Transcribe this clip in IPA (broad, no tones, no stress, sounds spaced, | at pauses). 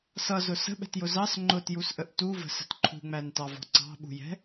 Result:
s ʌ z ʊ s ə̤ ɓ ɛ̤ t j ʊ z ɑ s ŋ͡ǃ ʊ t j u s ʔ ə ʔ t u v ə̤ s ə̤ t ǃʰ ṳ ŋ͡m æ n t ɑ v ɔ̤ ǀ ɑ̤ ɓ ṳ j ɛ̤